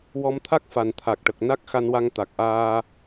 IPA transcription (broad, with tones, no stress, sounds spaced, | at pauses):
w ɔ˧ m t̪ʰ a˦˥ k̚ f a˨˩ n t̪ʰ a˨˩ k̚ ʈ ə˨˩ k̚ n a˦˥ k̚ x a˧ n w a˧ ŋ t̪ a˨˩ k̚ ʔ aː˧